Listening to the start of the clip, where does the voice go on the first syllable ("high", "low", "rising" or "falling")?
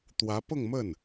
rising